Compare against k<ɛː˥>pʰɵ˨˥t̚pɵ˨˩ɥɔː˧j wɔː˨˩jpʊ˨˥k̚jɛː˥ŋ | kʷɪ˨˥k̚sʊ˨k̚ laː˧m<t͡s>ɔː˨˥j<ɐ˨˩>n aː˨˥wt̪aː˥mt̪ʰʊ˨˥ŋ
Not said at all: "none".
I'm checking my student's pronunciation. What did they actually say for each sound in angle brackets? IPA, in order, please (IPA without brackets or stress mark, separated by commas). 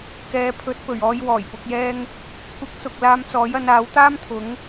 ɛː˨˧, t͡s, ɐ˨˧